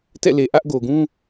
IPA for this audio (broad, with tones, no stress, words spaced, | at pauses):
tɛ̰˦˨le˨ ʔä˦ʔɡo˨ ɡũ˦